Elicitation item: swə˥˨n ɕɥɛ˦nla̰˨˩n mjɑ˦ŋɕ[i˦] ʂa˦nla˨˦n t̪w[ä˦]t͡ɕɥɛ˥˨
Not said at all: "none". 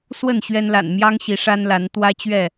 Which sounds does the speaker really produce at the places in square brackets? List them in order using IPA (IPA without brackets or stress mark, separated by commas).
i˨˦, ä˦